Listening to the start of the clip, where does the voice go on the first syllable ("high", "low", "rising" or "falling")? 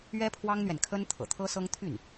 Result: high